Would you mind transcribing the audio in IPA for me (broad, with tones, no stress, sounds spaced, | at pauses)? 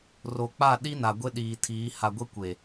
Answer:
r o˨ k͡p a˦˨ ɗ i˦ n a˨ ɡʷ e˦ ɗ iː˨ tʰ iː˨˦ h a˨ ɡʷ e˦ kʷ e˨